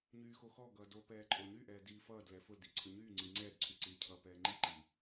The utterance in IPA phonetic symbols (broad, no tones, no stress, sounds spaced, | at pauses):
ɲ yː x o x ɔ ɡ ʌː d o p ɛː ǃʼ o ɲ y ʔ ɛː d iː f ʌː d l ɛ f ʊ l d i ǀʰ ʊ ɲ yː ŋ͡ǀ i ŋ͡ǀ ɛː d ǀʰ y ǀ iː cʰ ʌː p ɛː ŋ͡ǃ i ǃ iː